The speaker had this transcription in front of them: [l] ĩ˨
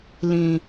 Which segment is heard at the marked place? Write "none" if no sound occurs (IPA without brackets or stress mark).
l